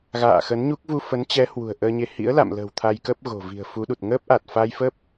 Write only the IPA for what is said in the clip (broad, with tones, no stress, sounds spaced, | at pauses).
ɣ a̰ː˧˨ x ə˨˦ n ɲ u˦˥ k̚ v u˧ f ə˨˦ n t͡ɕ ɛ˨˦ h w ṳ˨˩ ə̯ ʔ əː˧ ɲ e˧ h ḭ˧˥ ə̯ l a̰˧˨ m l ə̤ː˨˩ w t̪ʰ a˧ j k ə˦˥ p̚ ɣ o̤˨˩ v i̤˨˩ ə̯ f u˨˦ ɗ u˨˩ t̚ ŋ əː˦˥ p̚ ʔ a˨˩ t̚ f a˧ j f ə˦˥ p̚